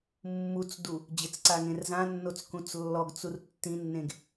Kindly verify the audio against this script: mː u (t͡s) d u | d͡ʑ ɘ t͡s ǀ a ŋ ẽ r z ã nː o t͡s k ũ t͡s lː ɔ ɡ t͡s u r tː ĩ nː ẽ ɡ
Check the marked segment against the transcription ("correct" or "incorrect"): correct